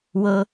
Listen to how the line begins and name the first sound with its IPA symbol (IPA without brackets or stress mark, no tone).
w